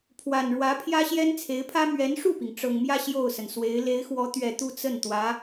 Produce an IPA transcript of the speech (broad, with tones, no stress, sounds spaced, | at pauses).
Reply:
pʰ w a˨˩ n ɻ w ä˧˥ pʰ j ä˥ ɕ j ɛ˥ n t͡sʰ e˧˥ ɪ̯ pʰ ä˥ m ɥ ɛ˧˥ n ʂ u˥˩ p i˩ ŋ ʈ͡ʂ ɤ˨˩ ŋ m j ä˥˧ ɕ j o˥˩ ʊ̯ s ə˩ n s w e˧˥ ɪ̯ l e˧˥ ɪ̯ x w ɔ˧˥ t̪ ɥ ɛ˨˩ t̪ u˥˧ t͡s ə˥˩ n t̪ w ä˧˥